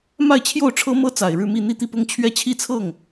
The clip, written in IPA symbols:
m a˥˧ ɪ̯ t͡ɕʰ j o˥˩ ʊ̯ ʈ͡ʂʰ ɤ˥ m ɤ˥ t͡s a˨˩ ɪ̯ ɻ ɻ̩˥˧ m i˥˧ n̪ i˥˧ t̪ i˥˩ p ʊ˥ ŋ t͡ɕʰ ɥ ɛ˥˧ t͡ɕʰ i˥˧ t͡sʰ ɤ˥˩ ŋ

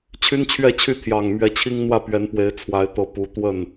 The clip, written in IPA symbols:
t͡ɕʰ y˦ n t͡ɕʰ ɥ ɛ˥˨ t͡ɕʰ y˥˨ t̪ʰ j ɑ˨˩ ŋ m ɥ ɛ˨˦ t͡ɕʰ i˦ ŋ n̪ w ä˥˨ p ɥ ɛ˨˦ n p w e˨˦ ɪ̯ t͡sʰ w a˨˦ ɪ̯ t̪ ɤ˨˦ p u˨˦ t̪ w ə˥˨ n

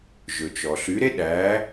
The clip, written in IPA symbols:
ʒ ɵ˩ t͡ʃ ɔ˩ ɬ y˩˥ ɾ e˥ ɗ æ˩˥

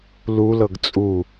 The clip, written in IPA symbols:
l u l ɤ ɡ t͡sʼ u

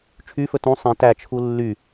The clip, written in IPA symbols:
t͡ʃʰ y f ɵ t ũ sˤ ĩ t æ t͡ʃʰ u lː y

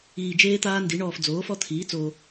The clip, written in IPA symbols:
iː˨ d͡ʒ eː˦ t̪ aː˦ n d i˩˥ ɳ ɔː˨ f d͡z oː˩˥ f ɔ˦ t̪ʰ iː˩˥ t͡s oː˨

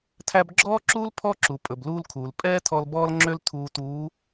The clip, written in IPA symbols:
tʰ æ˧ b ɡ͡ǁ ɔː˥ ǁ uː˥ l pʰ ɔ˥ ǁ u˩ pʼ ɵ˩ b l uː˧ l kʰ uː˩ l pʼ ɛː˥ tʰ ɔ˧ l b ɔː˥ l ŋ͡ǁ ø˥ l tʰ uː˧ t uː˧˥

